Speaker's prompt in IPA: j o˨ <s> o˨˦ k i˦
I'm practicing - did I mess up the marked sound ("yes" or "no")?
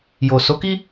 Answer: no